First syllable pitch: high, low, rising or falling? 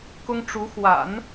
high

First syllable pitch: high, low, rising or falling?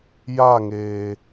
falling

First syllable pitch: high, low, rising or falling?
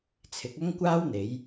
rising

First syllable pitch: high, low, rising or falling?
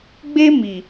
high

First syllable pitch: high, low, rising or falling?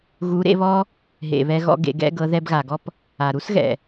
rising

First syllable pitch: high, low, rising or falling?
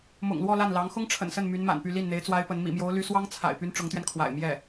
low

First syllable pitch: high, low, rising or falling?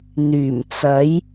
low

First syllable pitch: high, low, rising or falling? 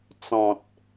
low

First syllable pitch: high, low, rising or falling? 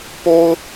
high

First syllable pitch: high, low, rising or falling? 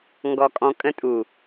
low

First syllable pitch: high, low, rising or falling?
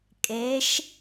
rising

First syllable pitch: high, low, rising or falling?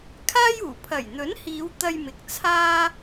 high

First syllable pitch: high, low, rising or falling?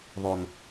low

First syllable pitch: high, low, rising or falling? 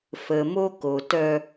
low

